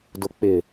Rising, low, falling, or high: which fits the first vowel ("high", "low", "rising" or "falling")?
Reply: low